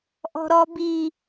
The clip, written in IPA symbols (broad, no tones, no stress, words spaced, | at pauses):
ʔɔ̤ɾɔbi